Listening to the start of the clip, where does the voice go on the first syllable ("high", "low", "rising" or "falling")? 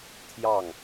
falling